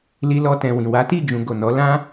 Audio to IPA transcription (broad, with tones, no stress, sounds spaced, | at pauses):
l i˧ l ɔ˧ t ɛ̃˨ w ĩ˨ w a˨˦ t i˦˨ d͡ʒ ũ˨ ɡ o˨ n ɔ˨˦ l ã˦